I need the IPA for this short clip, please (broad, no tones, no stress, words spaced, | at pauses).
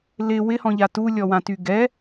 lɪ wɪhɔ̃ʎa tulʲɔwãty ɡɛ